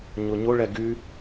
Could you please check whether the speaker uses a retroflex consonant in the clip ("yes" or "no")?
yes